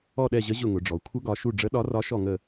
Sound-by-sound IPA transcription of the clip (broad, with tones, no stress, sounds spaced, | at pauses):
ɔ˦˨ ɗ ɛ˦˨ ʑ ə˧˥ ʑ ʊ˦˨ ŋ ʊ˩˧ ɖ͡ʐ ɔ˩˧ kʷʰ ə˧˥ ɡ ɒ˩˧ ʃ u˦˨ ɖ͡ʐ ə˧˥ ɗ ɒ˧˥ r ɒ˧˥ ʃ ɔ˦˨ ŋ ə˦˨